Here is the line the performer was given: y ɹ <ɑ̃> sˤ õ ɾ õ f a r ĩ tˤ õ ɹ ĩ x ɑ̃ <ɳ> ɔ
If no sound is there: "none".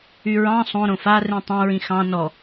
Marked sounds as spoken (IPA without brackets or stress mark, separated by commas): ɑ̃, n